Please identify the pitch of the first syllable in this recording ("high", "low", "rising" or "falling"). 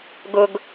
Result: high